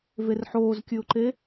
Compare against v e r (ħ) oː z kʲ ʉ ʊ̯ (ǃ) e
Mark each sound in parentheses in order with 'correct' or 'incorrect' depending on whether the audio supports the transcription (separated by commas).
correct, correct